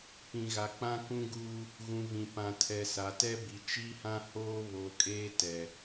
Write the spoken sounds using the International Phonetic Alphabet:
pĩ˨ɣa˨k͡pã˦ kũ˦ɡuː˦ | ɣũ˨vĩ˨ pã˨tʰɛ˨ sa˨tɛ˦bi˨ t͡ʃi˦hã˦ hoː˦ βoː˨kʼeː˦ tɛ˨

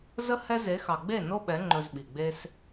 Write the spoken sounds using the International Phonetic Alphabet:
zə˦ hɛ˦ ze˨˦xɑ˨ ɡ͡be˦˨ no˦ɓɛ˨˦ ŋ͡ǃɵ˧zɓi˨ ɡ͡be˧s

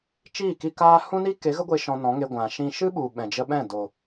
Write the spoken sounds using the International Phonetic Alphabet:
t͡ʃiː˦˨ki˧ kaː˦ hũ˦ni˦ ke˨˦ɣə˦ɡʷe˧ ʃɔ̃˧nɔ̃˨˦ŋe˧ ɡʷã˨ʃĩ˧ ʃɨ˦ɓu˨ ɓɛ̃˨d͡ʒə˧ɓɛ̃˦˨ do˨

